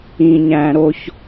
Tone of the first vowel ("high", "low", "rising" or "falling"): low